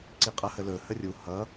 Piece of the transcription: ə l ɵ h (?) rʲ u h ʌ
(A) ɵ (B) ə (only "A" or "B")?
B